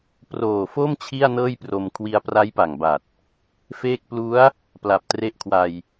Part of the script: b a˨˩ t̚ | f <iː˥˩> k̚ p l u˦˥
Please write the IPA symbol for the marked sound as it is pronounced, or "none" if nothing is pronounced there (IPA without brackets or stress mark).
eː˥˩